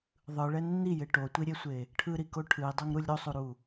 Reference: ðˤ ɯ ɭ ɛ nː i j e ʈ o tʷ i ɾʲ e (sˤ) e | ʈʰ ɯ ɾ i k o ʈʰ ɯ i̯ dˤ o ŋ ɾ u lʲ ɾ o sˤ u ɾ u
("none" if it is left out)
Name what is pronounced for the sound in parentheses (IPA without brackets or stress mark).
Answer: sʷ